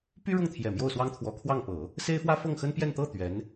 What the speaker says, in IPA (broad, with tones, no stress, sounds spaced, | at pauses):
p y˥ ɻ ʊ˥˩ ŋ t̪ʰ j ɛ˨˩ m j o˥˩ ʊ̯ s w ɑ˥ ŋ t̪ʰ w ɔ˧˥ kʰ w ɑ˥˩ ŋ p ɤ˨˩˦ | s e˥ ɪ̯ f w ä˥ f ɤ˥˩ ŋ x ə˥ n p j ɛ˥˧ n t̪ ɤ˥˩ t̪ ɥ ɛ˧˥ n